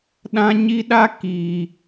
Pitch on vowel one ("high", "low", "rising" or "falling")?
high